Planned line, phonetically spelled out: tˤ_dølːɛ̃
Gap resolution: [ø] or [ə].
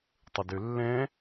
ə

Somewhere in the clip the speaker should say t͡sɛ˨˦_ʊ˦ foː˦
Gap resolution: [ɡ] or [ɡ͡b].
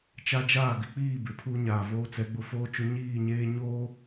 ɡ͡b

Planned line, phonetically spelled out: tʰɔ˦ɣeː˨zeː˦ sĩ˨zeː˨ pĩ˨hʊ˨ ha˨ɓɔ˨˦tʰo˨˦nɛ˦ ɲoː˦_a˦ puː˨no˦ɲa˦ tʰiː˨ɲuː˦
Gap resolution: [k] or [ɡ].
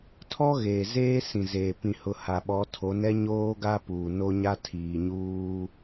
ɡ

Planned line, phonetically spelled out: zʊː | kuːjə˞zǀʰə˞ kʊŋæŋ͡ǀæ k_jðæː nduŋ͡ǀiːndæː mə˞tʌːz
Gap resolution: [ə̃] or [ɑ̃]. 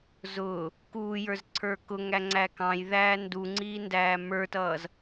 ɑ̃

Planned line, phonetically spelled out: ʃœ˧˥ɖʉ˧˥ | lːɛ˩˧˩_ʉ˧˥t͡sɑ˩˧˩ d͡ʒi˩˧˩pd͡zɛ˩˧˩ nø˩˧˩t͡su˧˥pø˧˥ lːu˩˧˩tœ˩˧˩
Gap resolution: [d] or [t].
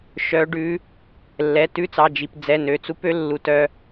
t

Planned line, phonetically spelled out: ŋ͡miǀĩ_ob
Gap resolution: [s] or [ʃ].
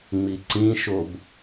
ʃ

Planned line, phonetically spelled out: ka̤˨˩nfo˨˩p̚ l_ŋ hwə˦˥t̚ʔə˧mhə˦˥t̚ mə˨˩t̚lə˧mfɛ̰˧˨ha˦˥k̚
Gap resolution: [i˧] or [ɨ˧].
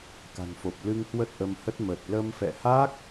ɨ˧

